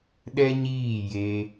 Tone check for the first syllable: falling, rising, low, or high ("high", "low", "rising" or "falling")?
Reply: high